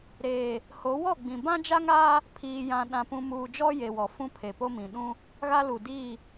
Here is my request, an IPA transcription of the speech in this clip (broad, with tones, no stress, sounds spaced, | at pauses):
ɾ eː˨ | h o˨˦ w ɔ˦˨ ɡ͡b ĩ˨ b ã˦ d͡ʒ a˦ ŋ aː˦ | pʰ iː˨ j ã˨ ɗ ã˨ p ũ˨ m uː˨ d͡ʒ ɔ˦ j e˨ w ɔ˨ f ũ˦ pʰ e˨ p o˦ m ĩ˨ ɗ ũ˦ | ɣ a˦ l u˨ d iː˦˨